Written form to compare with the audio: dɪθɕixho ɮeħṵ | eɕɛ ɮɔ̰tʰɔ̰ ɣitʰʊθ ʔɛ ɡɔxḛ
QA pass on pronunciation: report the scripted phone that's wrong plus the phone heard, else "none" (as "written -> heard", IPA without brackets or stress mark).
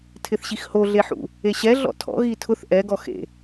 d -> tʰ